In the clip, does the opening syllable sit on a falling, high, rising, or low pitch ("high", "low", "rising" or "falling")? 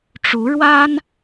rising